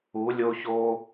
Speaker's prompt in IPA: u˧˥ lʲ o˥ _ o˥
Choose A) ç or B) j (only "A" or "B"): A